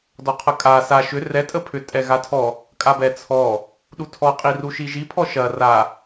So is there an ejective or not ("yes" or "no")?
yes